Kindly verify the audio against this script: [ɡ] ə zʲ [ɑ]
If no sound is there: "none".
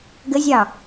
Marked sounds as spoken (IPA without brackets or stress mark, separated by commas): ɡ, ɑ